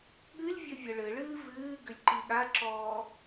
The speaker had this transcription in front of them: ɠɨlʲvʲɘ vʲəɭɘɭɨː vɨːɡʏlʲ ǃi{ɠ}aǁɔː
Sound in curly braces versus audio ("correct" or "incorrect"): correct